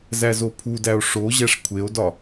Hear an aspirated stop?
yes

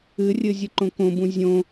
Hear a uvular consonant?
no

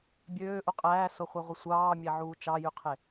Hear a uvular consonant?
yes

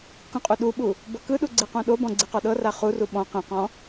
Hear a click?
yes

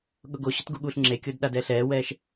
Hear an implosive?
yes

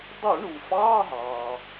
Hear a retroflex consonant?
yes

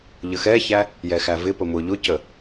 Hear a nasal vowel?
no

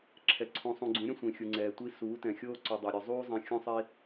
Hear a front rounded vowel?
yes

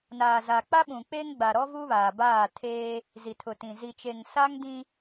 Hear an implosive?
yes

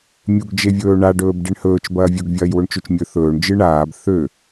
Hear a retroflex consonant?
yes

